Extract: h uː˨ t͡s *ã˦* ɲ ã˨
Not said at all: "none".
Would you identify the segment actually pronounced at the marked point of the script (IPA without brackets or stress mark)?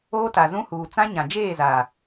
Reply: ã˦